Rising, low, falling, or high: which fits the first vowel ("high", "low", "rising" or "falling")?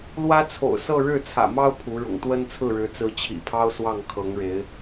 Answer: high